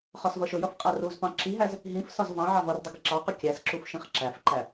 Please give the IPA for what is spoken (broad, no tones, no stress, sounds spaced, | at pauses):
χ ɒ s v ʌ ʃ ʊ j ʌ f qʼ æ r u z p ɑ̃ ǁ i ɦ æ z | ɦ ĩ f s ɒ z v ɑ̃ ʕ ɑ v ʌ r dˤ ʊ ɡ ɪ ǁ ɑ q ʊ kʲ æ s ǁ u f ʃ ĩ χ ǁ æ f ǃ æ